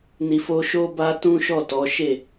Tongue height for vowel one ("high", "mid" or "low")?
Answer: high